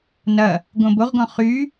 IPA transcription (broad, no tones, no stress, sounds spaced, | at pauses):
n ɐ | ɡ õ b o ʁ ɡ ɔ̃ χ y